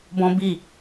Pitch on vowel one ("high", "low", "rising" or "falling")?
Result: high